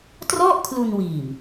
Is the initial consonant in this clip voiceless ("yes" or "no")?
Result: yes